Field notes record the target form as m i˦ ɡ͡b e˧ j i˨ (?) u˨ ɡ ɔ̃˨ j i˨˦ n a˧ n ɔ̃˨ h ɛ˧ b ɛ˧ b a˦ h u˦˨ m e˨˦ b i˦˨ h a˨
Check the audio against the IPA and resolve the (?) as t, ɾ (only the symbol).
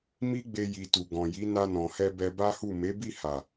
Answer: t